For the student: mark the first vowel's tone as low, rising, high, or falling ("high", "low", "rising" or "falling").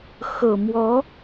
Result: low